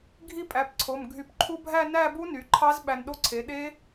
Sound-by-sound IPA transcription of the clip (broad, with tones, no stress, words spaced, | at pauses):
ɡʱi˥˧pʼæ˩˧˩pǀʰo˩˧˩m ɡʱy˨˩˦pǃʰu˦˥bʱæ˥˧ næ˥˧bu˦˥ ny˩˥ǃʰɑ˦˥z ɓæ˧nɗo˥˧ǀʰe˩˥ ɗe˦˥